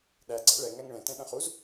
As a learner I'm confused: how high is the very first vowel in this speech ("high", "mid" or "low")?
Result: low